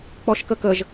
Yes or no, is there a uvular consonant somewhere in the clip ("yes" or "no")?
no